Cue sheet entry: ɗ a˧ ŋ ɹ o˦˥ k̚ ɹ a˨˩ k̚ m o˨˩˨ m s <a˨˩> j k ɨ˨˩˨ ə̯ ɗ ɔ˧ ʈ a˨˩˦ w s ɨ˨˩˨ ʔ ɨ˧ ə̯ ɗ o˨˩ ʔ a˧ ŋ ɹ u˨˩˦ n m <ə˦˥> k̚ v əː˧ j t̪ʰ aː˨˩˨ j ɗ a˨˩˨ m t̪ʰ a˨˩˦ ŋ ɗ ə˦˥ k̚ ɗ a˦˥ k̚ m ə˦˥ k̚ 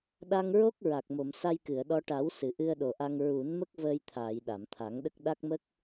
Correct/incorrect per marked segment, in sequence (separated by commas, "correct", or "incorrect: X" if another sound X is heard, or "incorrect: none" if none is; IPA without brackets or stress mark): incorrect: a˧, correct